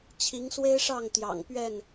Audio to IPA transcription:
t͡ɕʰ i˨˦ ŋ s w e˦ ɪ̯ ʂ ɑ˥˨ ŋ t̪ j ɑ̰˨˩ ŋ p ɥ ɛ˥˨ n

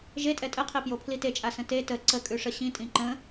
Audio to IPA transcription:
ʒ e tʼ ɛ tʼ ə qʰ i p j o pʰ l i t e t͡ʃʼ a s ə̃ t e t ə ǀ ə kʼ ʉ ʂ ə ɕ ĩ tʼ ĩ ǃ ə̃

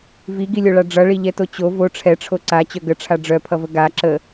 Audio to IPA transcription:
v i ɡ i lʲ o ɭ a ɖ͡ʐ ʌ ɭ i ʎ ɛ t o t͡ɕ o v o ʈ͡ʂʰ ɛ ʈ͡ʂʰ o ǀ a t͡ɕ œ ɡ ə ʈ͡ʂʰ a ɖ͡ʐ œ pʰ ʌ v ə ɡ a ǁ ə

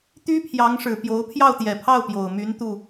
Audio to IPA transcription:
t̪ y˥ pʰ j ɑ˧˥ ŋ ʂ ɻ̩˨˩ p j o˧˥ ʊ̯ pʰ j ɑ˥˩ ʊ̯ t̪ j ɛ˨˩ pʰ ɑ˥˩ ʊ̯ p j o˨˩ ʊ̯ m y˧˥ n t̪ u˥˩

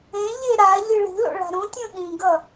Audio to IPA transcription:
ẽ ʎ e ɾ a ʎ ɯ ɭ i̤ l o̰ ɭ a̤ ɾ ũ tʲ ũ ɗ ĩ ɡ ʌ

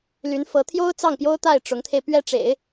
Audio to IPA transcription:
l y˧˥ n f ɤ˧˥ t̪ʰ j o˥ ʊ̯ t͡s ɑ˥˩ ŋ p j o˥ ʊ̯ t̪ a˥˩ ɪ̯ ʈ͡ʂ ʊ˧˥ ŋ t̪ʰ e˧ ɪ̯ p ɥ ɛ˥˩ ʈ͡ʂ ḛ˨˩˦ ɪ̯

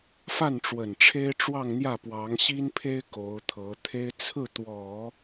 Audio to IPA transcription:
f a˥˩ n ʈ͡ʂ w ə˨˩ n ʈ͡ʂʰ e˥ ɪ̯ ʈ͡ʂ w ɑ˥˧ ŋ n̪ j ä˥˩ p w ɑ˧˥ ŋ ɕ i˥ n pʰ e˥ ɪ̯ k o˧˥ ʊ̯ t̪ʰ ɤ˧˥ t̪ʰ e˥ ɪ̯ t͡sʰ ɹ̩˥˩ t̪ w ɔ˨˩˦

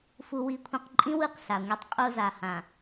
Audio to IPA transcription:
f u˨ w i˨˦ kʷʰ ĩ˨ q ǃʼ ĩ˦ w ɯ˦˨ q ɬ a˨ ŋʷ e˦ tˤ qʼ o˦ z a˨ h ã˨

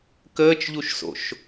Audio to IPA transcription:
k əː t͡ʃ ʎ u ʃ s o̰ ʃ

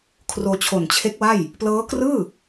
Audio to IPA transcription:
kʰ r oː˧ t͡ɕʰ o˨˩ n t͡ɕʰ e˦˥ k̚ w a˥˩ j | p l ɤː˦˥ k r ɯː˥˩

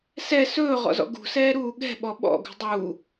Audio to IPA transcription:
s ɛ s ɵː ʁ ɔ̰ z ɔ̰ ɡ ṳ s ɛː ɾ uː ɠ ɛ̤ ɓ ɔ ɓ ɔ̰ ɡ ṳ dˤ u

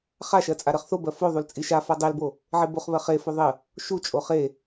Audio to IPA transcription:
χ a ʃ ɜ t͡sʼ a ɾ ɜ χ θ o b ɜ f o ðˤ u l t͡sʼ i ʃ a f a dˤ e l b o | ʕ e b o χ β ɜ χ e f o ðˤ ə | ʃ u t͡ʃʼ o χ e

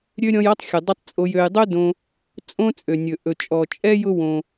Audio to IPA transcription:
ɾʲ ø˥ ɾʲ ɔ̃˦ j ɔ˥ tˤ xʲ ɵ˩ dˤ ø˦ tˤ t͡sʼ o˨ j ø˨ j dˤ ø˥ d õ˨ | t͡sʼ õ˦ t͡sʼ ø˩ nʲ ɵ˩ ʔ ɵ˩ t͡ʃʼ ɔ˩ t͡ʃʼ ɛ˥ j ʊ˦ w õ˩

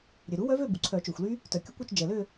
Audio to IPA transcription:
ɾʲ ø˩ ɾ u˨˥ w œ˦˥ v ø˥˧ b u˩ ǀʰ œ˨˩˦ t͡ʃ ø˩ xʷ l y˦˥ | t œ˩ kʲ ʊ˦˥ kʷ œ˥˧ t͡ʃ d͡ʒ ɛ˩ l ø˥˧

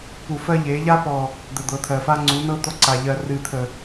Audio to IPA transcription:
p u˨ f ɜ˦ ʎ e˨˦ ʎ a˦ p ɔ˨ | d̪ ə˨ d̪ ɤ˨ t̪ʰ ɜ˨ f a˦ ŋ͡ǀ u˨˦ n ɤ˦ d̪ ɔ˦ ǀ a˨ ʎ ɜ˨ r ɨ˨ t̪ʰ ə˨

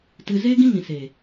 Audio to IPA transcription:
t ɨ˧ z eː˦ ɡ ĩ˦ ŋ ĩ˨ s eː˨

